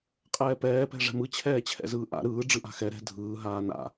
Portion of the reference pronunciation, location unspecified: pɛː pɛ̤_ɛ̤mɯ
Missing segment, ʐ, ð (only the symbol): ʐ